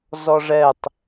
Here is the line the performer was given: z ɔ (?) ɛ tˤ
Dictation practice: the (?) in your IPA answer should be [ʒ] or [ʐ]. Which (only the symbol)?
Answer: ʐ